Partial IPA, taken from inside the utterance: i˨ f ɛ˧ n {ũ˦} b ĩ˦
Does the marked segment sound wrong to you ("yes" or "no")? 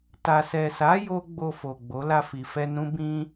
no